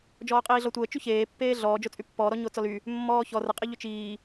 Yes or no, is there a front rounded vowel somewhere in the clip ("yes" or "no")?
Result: yes